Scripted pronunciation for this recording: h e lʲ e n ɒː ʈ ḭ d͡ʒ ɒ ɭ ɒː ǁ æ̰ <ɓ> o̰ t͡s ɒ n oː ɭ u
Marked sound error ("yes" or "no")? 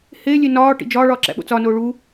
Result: no